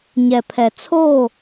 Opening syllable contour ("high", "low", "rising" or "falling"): low